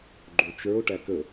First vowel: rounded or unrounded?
rounded